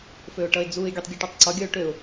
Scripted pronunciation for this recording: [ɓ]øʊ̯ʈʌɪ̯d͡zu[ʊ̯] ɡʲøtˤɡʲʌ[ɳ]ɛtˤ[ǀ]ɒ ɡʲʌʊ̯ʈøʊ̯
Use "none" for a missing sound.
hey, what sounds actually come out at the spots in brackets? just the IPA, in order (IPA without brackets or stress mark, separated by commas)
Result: f, ɪ̯, ʈ, ǀ